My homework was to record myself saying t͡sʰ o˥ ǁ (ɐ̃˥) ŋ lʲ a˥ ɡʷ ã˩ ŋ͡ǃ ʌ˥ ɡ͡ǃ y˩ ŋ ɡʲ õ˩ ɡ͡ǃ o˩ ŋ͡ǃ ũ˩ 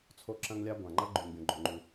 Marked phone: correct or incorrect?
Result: correct